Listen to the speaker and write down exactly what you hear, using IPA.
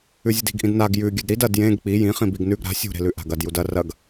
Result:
ʉ zʲ ɨ d i̤ ɡ ʔ ĩ d n a ɡ j ʉ ɡʲ ʉ d ɾ i d ɐ d j ẽ ɡ k͡p i j ĩ χ ĩ b i ɡ n ʉ ɡ ɾ a̤ sʲ ṳ ɾ e̤ l ʉ ʔ a̤ ɡ ɐ d j u d ɐ r ɐ ɡ

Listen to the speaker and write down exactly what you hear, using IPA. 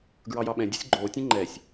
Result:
ɡ ɹ ɑ j ɑ ɓ ɛ̃ dʲ o̤ sʲ ɡ͡ǃ oː tʲ ɛ̃ ŋ͡ǃ ɛ sʲ

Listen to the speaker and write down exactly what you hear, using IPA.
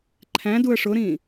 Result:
ǃʰ æ̃ d u ə̯ ʂ ʊ ɾ ĩː

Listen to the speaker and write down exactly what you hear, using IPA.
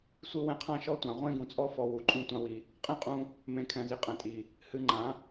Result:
sʷ ɨ˦ w ɛ̃˧ qʰ ã˦ ʃ ɔ˦ tʷ ã˨ ʁʷ ẽ˦ ɡ ũ˨ t͡sʼ ɔ˦ f ɔ˧ w u˨ ǃʼ ũ˦ tʷ ã˦ w i˧ | qʼ ẽ˦˨ qʼ ũ˧ | m ẽ˨ kʰ ɛ̃˨ z i˨ qʼ ɛ̃˨ tʼ i˨ | h ɨ˧ ŋ͡ǃ ã˨˦

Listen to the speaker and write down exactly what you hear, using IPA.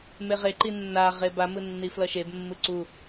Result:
m e ʁ e ǃ i nː a ʁ e b a m ɯ nː i f l ʌ ʃ e b mː ɯ ǀ u

